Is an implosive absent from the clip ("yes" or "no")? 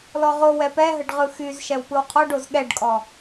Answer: no